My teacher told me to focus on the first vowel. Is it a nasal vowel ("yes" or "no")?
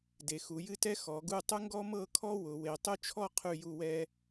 no